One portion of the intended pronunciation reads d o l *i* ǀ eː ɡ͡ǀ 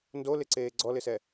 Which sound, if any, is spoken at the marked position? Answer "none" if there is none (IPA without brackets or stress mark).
ɪ